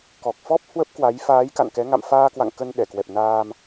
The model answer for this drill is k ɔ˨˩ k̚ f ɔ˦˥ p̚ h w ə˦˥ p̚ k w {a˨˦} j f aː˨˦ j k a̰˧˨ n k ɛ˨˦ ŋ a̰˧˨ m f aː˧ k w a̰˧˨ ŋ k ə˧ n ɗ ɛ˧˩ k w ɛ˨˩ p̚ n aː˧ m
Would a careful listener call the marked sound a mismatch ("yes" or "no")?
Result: no